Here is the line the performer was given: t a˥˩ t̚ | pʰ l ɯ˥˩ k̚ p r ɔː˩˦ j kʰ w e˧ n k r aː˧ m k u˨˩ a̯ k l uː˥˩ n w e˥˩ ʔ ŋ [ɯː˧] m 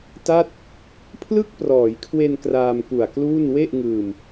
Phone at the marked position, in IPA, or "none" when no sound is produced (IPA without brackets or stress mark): ɯː˧